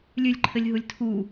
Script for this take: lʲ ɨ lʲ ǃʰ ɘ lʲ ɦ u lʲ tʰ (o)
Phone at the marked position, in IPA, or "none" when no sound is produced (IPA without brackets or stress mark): u